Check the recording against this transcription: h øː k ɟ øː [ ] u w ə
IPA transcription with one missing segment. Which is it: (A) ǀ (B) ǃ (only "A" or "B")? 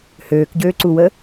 A